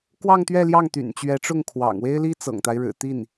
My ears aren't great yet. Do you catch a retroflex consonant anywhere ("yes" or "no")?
yes